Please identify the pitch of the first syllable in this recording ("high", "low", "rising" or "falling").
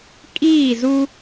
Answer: falling